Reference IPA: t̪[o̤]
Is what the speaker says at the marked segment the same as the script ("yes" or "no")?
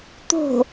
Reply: yes